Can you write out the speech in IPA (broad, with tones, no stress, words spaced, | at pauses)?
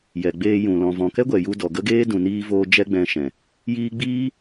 jɛ˨ɡ͡beː˧jũ˨ lɔ̃˨vɔ̃˨kɛ˦ɡʷɛ˨ ju˧dɔ˨ɡə˦ɡeː˦ dũ˨niː˧voː˧ d͡ʒɛ˦ɡ͡bɛ̃˧ʃɛ̃˨ | jiː˧ɡ͡biː˦